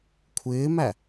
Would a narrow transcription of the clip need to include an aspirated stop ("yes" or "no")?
yes